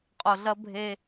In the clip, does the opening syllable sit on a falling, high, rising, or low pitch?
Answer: low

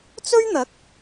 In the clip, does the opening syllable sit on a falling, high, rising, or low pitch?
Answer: high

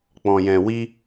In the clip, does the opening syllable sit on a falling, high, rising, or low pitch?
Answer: low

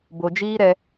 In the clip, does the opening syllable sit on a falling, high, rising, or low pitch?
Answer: low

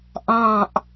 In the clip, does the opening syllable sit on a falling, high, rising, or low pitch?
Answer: low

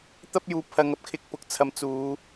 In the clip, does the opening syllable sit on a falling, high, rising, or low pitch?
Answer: high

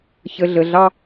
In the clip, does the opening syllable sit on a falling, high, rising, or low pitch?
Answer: low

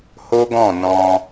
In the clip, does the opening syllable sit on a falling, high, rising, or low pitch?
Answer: high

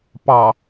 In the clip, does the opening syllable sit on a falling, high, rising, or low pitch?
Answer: low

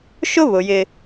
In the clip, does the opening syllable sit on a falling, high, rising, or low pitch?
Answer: high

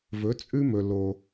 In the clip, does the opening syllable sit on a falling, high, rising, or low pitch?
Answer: rising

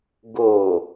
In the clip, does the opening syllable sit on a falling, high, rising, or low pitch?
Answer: low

